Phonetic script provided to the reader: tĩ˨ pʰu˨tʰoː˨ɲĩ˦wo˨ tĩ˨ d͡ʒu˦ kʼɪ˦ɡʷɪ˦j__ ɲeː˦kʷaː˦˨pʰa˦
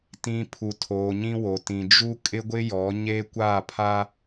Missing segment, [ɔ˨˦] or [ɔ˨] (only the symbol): ɔ˨˦